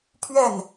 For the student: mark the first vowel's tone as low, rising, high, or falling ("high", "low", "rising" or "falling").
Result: falling